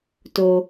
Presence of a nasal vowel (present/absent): absent